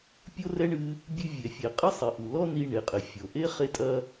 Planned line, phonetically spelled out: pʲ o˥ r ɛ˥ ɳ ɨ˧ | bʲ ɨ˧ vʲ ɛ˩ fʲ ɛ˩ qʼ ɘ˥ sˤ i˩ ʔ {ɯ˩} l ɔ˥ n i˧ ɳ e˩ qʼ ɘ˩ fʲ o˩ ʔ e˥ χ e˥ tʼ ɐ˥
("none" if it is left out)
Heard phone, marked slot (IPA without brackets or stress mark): u˩